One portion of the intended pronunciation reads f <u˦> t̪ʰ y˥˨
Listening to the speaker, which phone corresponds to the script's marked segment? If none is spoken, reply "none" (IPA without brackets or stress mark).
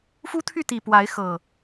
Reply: u˦